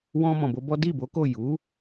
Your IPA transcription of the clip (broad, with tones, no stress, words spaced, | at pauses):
wɔ̃˧ mɔ̃˨bo˧bɔ˦ di˦˨bo˨˦ko˦˨ ju˨˦